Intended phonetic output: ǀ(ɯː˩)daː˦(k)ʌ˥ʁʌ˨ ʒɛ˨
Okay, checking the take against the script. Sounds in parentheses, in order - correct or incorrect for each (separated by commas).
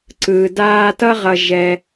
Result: correct, incorrect